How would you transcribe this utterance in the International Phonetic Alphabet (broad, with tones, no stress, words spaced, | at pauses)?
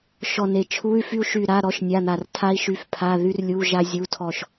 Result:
ʃɔ˦˨ne˦˨ t͡ʃʰu˧˥˧y̯ fy˥u̯ʃy˦˨ɾa˧˥˧ ɾɔ˧˥˧ʃnʲa˧˥˧n̪a˦˨r tʰa˥i̯ ʃy˧˥˧fpʰa˧˥˧ ðy˥rlʲu˧˥˧ ʒa˥zʲu˧˥˧ tʰɔ˦˨ʃ